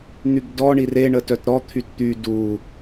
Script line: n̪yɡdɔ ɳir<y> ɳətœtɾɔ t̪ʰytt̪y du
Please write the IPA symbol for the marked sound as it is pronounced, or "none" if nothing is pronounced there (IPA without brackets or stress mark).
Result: e